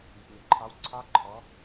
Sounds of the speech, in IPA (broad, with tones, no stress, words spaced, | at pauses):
i˩pnʊ˩ǃʰɑ˨˥wǀʰɑ˦˥ ǃʰɔ˨˥